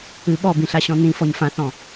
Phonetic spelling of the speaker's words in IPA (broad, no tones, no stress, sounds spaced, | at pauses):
ɨ ɓ ɔ b ĩ ɬ a ɕ ɔ̃ n ĩ f ɔ ɲ f ã θ ɔ̃